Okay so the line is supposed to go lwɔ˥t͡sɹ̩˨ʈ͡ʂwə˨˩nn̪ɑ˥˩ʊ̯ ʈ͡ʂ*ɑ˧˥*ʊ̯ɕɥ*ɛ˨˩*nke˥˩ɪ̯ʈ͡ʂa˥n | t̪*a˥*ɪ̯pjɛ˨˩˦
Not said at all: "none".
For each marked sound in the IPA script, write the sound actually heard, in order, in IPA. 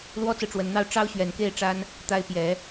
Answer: ɑ˥, ɛ˨˩, a˥

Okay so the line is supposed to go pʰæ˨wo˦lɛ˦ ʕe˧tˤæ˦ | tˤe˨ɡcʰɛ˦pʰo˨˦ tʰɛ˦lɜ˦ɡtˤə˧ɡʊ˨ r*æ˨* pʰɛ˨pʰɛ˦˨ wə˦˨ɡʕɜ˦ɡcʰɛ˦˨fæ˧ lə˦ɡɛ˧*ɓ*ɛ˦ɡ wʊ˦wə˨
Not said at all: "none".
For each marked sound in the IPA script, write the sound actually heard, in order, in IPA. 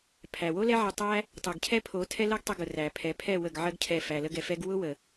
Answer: æ˨, f

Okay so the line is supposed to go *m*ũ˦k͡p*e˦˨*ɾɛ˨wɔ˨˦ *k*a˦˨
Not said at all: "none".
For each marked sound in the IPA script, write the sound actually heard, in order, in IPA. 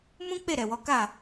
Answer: m, e˦˨, k

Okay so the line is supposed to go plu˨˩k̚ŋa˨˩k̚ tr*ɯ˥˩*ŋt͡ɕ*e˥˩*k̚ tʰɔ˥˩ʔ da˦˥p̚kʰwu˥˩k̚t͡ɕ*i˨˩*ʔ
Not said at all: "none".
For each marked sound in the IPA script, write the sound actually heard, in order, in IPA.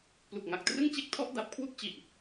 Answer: ɯ˥˩, e˥˩, i˨˩

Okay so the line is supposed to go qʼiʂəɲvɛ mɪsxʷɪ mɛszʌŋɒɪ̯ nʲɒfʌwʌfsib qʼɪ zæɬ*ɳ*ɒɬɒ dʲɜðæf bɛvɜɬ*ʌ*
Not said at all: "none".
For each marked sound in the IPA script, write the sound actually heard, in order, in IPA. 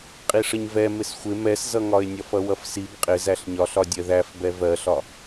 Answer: ɲ, ɒ

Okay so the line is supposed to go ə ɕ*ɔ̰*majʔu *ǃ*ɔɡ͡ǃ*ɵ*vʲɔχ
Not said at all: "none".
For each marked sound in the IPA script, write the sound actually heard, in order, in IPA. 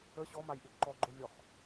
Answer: ɔ, ǃ, o

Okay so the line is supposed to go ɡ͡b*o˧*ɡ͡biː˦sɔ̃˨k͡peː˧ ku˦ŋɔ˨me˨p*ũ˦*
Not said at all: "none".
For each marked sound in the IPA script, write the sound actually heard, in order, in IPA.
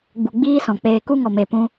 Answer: u˧, ũ˧

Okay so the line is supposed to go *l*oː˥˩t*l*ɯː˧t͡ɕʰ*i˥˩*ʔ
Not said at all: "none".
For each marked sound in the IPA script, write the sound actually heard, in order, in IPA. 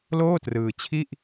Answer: l, r, i˥˩

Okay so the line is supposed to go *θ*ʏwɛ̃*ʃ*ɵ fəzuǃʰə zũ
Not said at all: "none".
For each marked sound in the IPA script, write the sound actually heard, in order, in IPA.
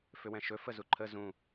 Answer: f, ʃ

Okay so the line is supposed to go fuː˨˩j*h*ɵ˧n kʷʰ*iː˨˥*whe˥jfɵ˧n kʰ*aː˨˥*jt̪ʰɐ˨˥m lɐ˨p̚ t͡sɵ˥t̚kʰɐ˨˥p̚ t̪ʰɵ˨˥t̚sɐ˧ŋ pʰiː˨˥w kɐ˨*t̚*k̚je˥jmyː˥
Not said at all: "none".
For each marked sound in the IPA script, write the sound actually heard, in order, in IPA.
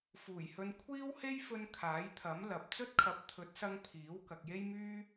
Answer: h, iː˥, aː˨˥, none

